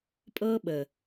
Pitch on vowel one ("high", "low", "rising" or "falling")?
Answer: high